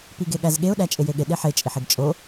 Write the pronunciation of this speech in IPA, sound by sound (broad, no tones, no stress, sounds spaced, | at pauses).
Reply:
p i ɡ e ɠ æ z ɠ e ʊ̯ ɗ æ t͡ʃʼ e j e ɠ e ɗ e ħ e t͡ʃʼ i ħ e ɡ t͡ʃʼ o